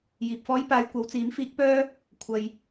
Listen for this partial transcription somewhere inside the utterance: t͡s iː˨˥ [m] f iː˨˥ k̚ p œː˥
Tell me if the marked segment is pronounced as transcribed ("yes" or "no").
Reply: yes